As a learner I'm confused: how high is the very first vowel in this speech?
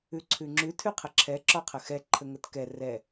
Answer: high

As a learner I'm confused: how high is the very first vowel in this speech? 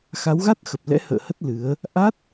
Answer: low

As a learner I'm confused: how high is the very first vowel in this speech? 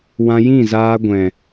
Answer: low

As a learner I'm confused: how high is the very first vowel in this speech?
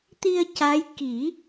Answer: high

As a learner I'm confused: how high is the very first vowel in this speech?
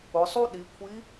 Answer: high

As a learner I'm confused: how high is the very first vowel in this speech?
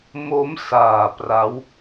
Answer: mid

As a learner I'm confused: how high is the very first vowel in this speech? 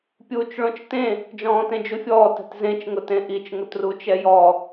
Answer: high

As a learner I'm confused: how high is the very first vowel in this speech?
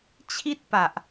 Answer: high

